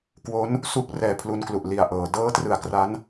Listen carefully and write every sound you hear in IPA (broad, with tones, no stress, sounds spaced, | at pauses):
k w o˦˥ n | s u˥˩ k̚ r ɛː˧ pʰ l u˧ n k l u˨˩ ʔ l i˨˩ a̯ ʔ ɤː˩˦ d ɤː˦˥ t r ɯ˨˩ a̯ k r a˦˥ n